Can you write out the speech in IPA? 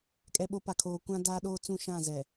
kʼ ɛ˨ ɓ o˨˦ p a˨ kʰ oː˨ kʷ ã˦ d aː˦ ɗ oː˦ t͡s ũ˦˨ ʃ ã˦˨ z ɛ˨

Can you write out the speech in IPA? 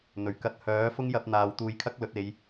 n̪ ɵ˨˩ ɥ k ɐ˧ t̚ h œː˨˥ f ʊ˥ ŋ j ɐ˧ p̚ n̪ aː˨ w t̪ uː˧ j kʰ ɐ˥ k̚ l ɵ˨˥ t̚ e˨˧ j

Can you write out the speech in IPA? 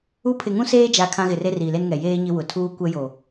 u˦ pʰ ɪ˨ ŋ ũ˦ s eː˦ d͡ʒ a˨ kʰ ã˦ ɣ ɪ˨ r e˦ r i˨ l e˦ n ŋ ɛ˨ j eː˦ ɲ ɪ˦ w ʊ˨ tʰ uː˦ kʷ ɛ˦ j o˨

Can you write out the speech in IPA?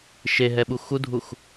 ʃ e ɦ ɛ ɓ u x u dʱ u x

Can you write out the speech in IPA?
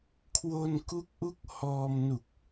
kʰ w o˧ n k u˦˥ k̚ ʔ u˦˥ k̚ h ɔː˧ m n u˨˩ k̚

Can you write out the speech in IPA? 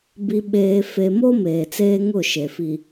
b i˨ ɓ eː˨ f e˨ m o˦ m eː˨ t͡s eː˦ ŋ ʊ˦˨ ʃ e˨ f i˨

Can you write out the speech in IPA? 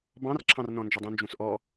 b ɑ̃ r ǁʰ ɑ̃ r n ɔ̃ n d͡ʒ ə dˤ ũ n d͡ʒ ũ s ʔ ɔ

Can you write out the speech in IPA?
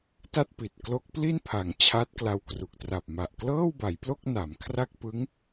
t a˥˩ t̚ p i˨˩ t̚ k l o˦˥ k̚ p l i˥˩ n pʰ a˩˦ ŋ t͡ɕʰ a˦˥ t̚ k l a˧ w k r u˨˩ k̚ t r a˨˩ p̚ m a˨˩ ʔ k l ɤː˥˩ w b a˩˦ j p l o˥˩ k̚ n a˩˦ m kʰ r a˥˩ k̚ p ɯ˦˥ ŋ

